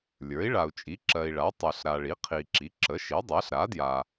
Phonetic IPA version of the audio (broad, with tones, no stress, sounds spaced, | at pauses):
lʲ ə˞˩˥ i̯ ɭ a˨ u̯ t͡ʃʼ i˩˥ ǁ ɜ˨ i̯ ɭ a˩˥ tˤ ə˞˨ ɬ ɾ a˨ ɭ i˩˥ qʰ i˨ ǁ i˩˥ ǁ ə˩˥ ʃ i˩˥ dˤ ɜ˩˥ ɬ ɾ a˩˥ d j a˨